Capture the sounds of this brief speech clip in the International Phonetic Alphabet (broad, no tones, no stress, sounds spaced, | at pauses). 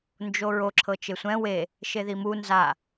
n d͡ʒ o ɹ o ǁʰ ɤ t͡ʃ e sʷ ɛ̃ w e | ʃ e ð i m u n z a